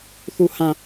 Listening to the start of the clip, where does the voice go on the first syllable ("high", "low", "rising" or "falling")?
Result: falling